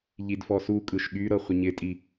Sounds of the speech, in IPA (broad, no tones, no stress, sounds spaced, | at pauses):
ʎ i d f ɔ s u kʼ ɯ ʃ ɠ y ɾ ɤ χʷ ɪ ɲ ɪ tʼ i